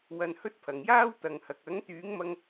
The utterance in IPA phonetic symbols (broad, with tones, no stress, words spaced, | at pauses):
wɐ˧nhɵ˥t̚pʰɐ˨ŋ jaː˥wt̪ɐ˨ŋhɐ˨k̚ ɐ˨˥ŋt̪yː˨˥ŋmɐ˧ŋ